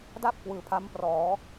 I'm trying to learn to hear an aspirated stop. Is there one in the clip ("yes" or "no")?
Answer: yes